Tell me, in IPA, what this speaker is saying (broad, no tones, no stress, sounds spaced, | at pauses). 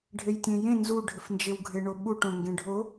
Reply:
ɖʱ e j tʲ ẽ j ẽ n z u ɖʱ ɪ f n d͡ʒ e w ɡʱ e ɳ o ɓ u ʈ õ ŋ ɡ ẽ ɖʱ o